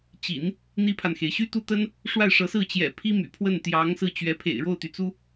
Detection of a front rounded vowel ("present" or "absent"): present